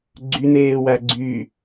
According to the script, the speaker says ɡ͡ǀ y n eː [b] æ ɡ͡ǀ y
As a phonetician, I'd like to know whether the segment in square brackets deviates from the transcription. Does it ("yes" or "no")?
yes